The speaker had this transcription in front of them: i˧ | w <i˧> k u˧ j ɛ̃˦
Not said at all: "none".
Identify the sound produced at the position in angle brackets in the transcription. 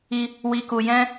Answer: i˧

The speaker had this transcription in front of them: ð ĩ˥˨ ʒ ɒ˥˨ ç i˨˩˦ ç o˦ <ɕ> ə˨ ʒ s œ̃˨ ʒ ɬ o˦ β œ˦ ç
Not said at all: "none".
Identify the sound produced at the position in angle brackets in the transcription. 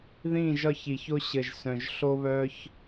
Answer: ɕ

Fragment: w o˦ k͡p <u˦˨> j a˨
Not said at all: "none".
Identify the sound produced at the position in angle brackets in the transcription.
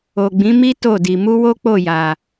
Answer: o˦˨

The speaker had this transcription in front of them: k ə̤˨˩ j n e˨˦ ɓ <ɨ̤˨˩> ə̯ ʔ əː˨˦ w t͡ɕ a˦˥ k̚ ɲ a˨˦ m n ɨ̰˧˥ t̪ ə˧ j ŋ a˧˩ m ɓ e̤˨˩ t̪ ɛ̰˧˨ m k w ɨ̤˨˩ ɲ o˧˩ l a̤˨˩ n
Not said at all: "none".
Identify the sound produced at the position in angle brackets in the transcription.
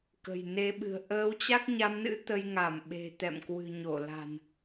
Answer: ɨ̤˨˩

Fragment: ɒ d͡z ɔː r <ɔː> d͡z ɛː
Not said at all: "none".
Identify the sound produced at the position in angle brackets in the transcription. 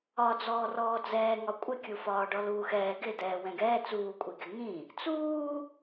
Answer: ɔː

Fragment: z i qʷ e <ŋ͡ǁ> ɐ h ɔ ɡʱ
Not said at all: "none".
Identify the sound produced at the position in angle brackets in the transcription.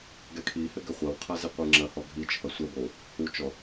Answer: ŋ͡ǁ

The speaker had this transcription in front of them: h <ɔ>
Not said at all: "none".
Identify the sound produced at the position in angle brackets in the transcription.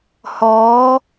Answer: ɔː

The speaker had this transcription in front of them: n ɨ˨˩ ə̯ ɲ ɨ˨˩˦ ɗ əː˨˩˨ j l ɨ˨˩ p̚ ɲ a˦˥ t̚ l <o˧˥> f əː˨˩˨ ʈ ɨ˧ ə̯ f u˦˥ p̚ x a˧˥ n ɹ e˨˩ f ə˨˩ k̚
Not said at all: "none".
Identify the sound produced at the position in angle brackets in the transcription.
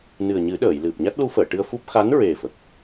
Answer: u˧˥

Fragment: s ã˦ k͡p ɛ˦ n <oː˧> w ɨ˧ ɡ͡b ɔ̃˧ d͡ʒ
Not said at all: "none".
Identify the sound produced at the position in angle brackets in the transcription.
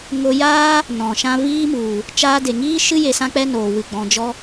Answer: oː˨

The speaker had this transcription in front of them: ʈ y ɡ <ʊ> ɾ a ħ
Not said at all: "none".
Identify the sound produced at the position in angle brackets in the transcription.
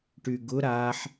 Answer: ʊ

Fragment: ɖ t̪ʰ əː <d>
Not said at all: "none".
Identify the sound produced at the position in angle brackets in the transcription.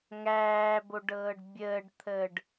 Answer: ɖ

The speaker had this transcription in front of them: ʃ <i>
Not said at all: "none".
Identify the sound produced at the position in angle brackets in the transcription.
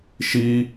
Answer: i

